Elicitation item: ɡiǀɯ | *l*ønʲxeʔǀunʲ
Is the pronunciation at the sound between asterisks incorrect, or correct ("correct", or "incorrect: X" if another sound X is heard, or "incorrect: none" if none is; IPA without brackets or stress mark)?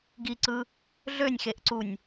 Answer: incorrect: ɮ